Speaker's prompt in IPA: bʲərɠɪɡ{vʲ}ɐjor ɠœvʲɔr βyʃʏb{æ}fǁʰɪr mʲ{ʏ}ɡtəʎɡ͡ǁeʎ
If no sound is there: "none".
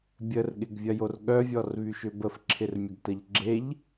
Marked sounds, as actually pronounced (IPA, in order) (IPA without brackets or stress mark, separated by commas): vʲ, ə, ə